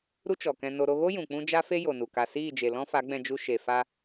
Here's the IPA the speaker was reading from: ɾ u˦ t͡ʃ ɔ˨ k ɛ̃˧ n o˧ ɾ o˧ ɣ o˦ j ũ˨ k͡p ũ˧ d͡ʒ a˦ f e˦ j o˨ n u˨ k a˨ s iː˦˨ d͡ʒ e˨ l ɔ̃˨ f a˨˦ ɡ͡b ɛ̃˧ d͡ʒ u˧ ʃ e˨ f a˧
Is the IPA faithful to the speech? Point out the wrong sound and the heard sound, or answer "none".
ɔ̃˨ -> ɔ̃˦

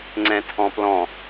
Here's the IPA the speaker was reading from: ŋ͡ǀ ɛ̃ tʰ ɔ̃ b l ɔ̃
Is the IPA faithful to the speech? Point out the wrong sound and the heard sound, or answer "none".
b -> p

